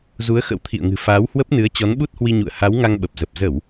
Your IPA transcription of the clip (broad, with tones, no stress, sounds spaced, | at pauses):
z u˨˦ ə̯ x ə̰˧˥ w t̪ʰ ḭ˧˨ ə̯ ŋ ɨ̤˨˩ f aː˨˦ w h w ə˦˥ p̚ n ɨ˨˦ ə̯ t͡ɕ ɔ˨˦ n ɓ u˦˥ t̚ h w i˧ ɲ ṵ˧˨ ə̯ h a˨˦ w ŋ a˧ ŋ ɓ ə˨˩ p̚ z ə˨˩ p̚ z ə˧˩˨ w